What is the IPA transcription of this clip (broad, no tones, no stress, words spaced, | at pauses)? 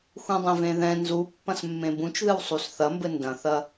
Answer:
xũdˤẽvẽðɛ̃ nzu pːɐ̃smːẽbũt͡ʃðɨw sˤusθɐmbɘ ndɐ̃θɐ